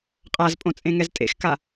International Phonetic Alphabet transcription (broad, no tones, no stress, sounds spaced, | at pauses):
qʼ a z pʼ õ t͡sʼ ẽ ŋ ɛ z tʼ ḛ x k a